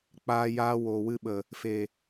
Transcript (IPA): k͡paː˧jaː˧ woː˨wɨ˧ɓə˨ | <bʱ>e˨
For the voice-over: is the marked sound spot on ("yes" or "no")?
no